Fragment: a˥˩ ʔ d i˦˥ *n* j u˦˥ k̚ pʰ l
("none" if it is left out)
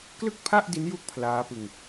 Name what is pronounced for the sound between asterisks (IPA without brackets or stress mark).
n